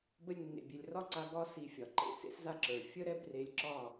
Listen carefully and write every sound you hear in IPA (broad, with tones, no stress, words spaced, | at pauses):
bə˧lʲnːḛ˨ bʲe˨lʲrɒ˦ǀa˧ ɡɒ˦ si˧fʲɒ˨ǃḛ˧ sḛ˦s za˦ǁə˞˨ fʲə˦ɾɛ˦b re˧lʲǁɒ˦˨